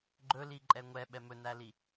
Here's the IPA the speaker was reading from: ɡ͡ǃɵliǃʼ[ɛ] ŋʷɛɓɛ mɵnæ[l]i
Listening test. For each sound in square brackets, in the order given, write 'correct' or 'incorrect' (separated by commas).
correct, correct